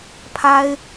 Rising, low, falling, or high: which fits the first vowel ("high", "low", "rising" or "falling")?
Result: high